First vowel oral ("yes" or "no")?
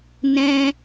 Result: no